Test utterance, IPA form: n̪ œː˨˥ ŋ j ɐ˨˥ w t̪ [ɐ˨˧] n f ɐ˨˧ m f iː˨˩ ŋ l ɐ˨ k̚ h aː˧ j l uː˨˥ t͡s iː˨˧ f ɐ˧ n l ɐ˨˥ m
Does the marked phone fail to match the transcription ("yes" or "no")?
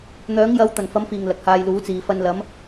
yes